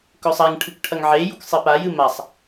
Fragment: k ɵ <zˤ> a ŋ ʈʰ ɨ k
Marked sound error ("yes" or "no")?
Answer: yes